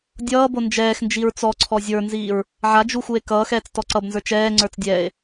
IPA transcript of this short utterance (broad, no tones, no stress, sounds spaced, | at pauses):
dʲ ʌː b o n d͡ʒ ɛː x n d͡ʒ i ɹ t͡s ɔ ǀʰ ɔ zʲ ə˞ n z iː ɹ | ʕ a d͡ʒ u x u e̯ k ʌː x ɛː t͡s t ɔ ǀ ʌ b n z ə˞ t͡ʃ ɛː ŋ͡ǀ ə˞ t͡s dʲ ɛː e̯